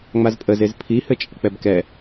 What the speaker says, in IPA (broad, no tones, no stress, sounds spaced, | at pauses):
ŋ͡m a z pʼ ə z e z pʰ i h ɘ t͡ʃʼ ə k͡p ɛ b k ɛ